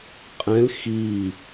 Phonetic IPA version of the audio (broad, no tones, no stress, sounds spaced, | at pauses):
qʼ ɛ̃ l x i